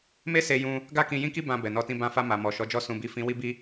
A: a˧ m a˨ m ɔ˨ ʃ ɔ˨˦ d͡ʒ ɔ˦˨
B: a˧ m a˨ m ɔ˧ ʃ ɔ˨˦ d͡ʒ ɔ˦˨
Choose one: A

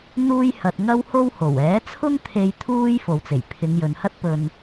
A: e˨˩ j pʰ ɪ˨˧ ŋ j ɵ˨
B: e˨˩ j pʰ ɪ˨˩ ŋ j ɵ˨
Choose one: A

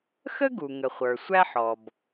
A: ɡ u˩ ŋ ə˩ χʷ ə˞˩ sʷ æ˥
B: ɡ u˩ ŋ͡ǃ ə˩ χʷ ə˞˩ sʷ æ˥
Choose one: A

